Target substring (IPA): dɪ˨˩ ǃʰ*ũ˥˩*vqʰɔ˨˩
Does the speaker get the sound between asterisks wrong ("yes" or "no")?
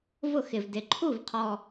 yes